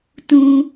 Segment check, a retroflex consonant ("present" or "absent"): absent